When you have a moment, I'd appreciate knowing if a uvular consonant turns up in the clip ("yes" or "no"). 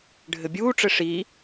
no